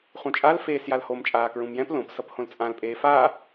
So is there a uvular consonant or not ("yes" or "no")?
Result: yes